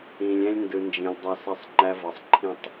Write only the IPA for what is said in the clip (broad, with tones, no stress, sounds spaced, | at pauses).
ĩ˨ lʲ ɛ̃˦ lʲ n d ɯ˨ n d͡ʒ ĩ˨ lʲ dˤ a˦ s ɐ˦ sˤ ŋ͡ǃ æ˦ v ɤ˨ sˤ ǃʰ ĩ˦˨ tˤ